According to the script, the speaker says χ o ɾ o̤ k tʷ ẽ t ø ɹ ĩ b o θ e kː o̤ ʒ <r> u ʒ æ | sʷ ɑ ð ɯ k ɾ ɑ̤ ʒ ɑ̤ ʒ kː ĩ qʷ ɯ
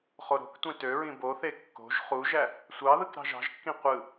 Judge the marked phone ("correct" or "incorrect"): incorrect